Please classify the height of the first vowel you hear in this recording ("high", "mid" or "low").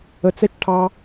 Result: mid